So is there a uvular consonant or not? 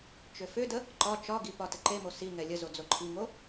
no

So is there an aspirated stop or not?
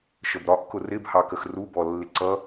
no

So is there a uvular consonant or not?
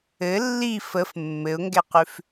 yes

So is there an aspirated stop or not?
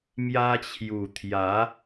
yes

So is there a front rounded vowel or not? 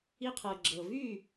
yes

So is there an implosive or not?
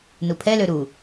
no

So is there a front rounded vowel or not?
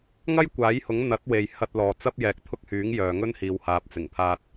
yes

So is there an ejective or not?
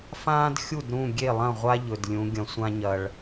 no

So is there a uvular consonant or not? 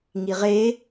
yes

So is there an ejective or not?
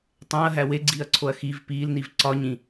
no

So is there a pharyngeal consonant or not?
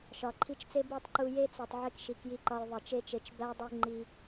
yes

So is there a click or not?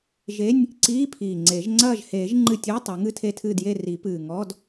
yes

